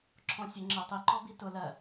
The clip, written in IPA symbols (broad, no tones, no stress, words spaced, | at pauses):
ǁʰɔ̃sʲə ŋ͡ǁə tˤiǃɔ bitʊ lɜ